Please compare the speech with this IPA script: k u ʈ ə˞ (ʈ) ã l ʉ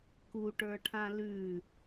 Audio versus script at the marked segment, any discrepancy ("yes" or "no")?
yes